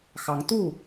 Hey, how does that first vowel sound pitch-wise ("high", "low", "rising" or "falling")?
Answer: rising